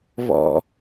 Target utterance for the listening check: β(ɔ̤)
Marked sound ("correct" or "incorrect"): incorrect